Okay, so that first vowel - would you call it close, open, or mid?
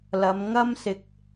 open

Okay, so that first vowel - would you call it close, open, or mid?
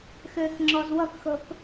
mid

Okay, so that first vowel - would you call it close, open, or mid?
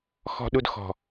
mid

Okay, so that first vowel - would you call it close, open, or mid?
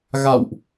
open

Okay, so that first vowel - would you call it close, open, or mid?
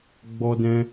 mid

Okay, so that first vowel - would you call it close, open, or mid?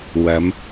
open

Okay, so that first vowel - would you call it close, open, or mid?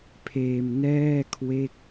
mid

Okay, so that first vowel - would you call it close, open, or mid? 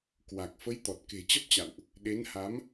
open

